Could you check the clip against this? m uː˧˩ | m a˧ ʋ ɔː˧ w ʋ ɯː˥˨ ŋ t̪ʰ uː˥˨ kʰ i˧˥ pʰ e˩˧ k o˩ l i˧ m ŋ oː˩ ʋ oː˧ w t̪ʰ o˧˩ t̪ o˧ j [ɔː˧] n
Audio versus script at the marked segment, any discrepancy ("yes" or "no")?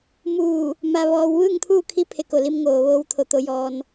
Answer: no